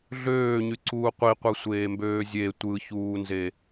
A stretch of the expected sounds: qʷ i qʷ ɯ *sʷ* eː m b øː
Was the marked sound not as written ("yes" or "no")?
no